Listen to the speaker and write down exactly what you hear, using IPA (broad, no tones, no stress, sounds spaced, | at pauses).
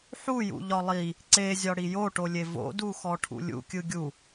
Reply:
ħ u j ṵ ʎ ɒ lˠ i | ǀ e zʲ ɒ ɽ i j o ʈ o lʲ e v o̰ d u x ɔ ʈʰ ṵ lʲ ṵ kʲ ɯ ɡʲ u